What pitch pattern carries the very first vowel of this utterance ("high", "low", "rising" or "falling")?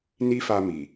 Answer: high